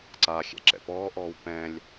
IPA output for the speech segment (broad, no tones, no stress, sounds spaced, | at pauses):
ǀ a xʲ ɛ̰ ǁ ɛ̰ p ɔː ʔ ɔː w p ɛ̃ lʲ